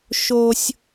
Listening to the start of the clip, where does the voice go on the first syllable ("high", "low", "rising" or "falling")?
high